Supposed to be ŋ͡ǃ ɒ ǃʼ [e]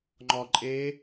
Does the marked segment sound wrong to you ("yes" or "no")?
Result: no